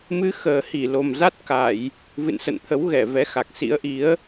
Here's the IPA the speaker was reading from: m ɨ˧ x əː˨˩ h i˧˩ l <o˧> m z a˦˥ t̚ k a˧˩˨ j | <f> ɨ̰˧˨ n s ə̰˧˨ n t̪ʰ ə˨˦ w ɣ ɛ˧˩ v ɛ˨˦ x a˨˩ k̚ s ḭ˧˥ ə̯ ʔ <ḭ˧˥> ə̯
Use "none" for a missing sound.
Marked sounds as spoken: o˨˩, v, i˨˦

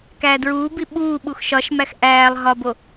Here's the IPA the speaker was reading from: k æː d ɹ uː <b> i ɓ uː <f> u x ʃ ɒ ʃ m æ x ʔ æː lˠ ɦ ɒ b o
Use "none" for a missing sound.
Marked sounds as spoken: b, ɓ

